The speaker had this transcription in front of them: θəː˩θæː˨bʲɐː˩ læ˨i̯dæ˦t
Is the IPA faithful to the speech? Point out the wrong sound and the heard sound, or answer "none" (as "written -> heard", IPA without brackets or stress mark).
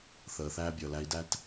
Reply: ɐː˩ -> əː˩